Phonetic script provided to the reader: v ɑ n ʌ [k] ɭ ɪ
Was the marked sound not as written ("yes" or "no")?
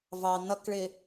no